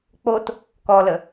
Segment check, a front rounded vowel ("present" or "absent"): absent